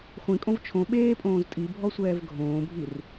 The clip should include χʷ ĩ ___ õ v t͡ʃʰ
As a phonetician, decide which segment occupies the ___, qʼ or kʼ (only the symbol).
kʼ